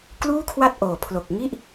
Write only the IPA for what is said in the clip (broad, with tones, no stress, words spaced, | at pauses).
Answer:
kluː˥˩kʰwa˥˩t̚ʔoː˨˩ pʰlo˨˩k̚ŋi˥˩ʔ